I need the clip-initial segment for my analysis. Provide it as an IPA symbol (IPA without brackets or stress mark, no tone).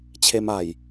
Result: t͡ɕʰ